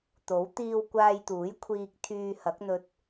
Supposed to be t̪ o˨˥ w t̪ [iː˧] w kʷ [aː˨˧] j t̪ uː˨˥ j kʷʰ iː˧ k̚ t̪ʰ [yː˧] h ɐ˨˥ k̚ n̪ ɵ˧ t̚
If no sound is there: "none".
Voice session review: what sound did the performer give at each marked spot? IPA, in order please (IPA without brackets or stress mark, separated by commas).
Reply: iː˧, aː˧, yː˧